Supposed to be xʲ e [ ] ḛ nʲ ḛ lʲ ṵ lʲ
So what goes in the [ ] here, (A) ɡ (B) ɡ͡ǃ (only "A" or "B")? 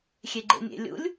B